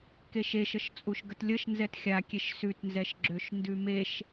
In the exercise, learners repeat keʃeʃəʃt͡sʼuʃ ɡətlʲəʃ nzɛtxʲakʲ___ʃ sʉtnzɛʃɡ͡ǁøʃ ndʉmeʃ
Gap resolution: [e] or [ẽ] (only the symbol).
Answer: e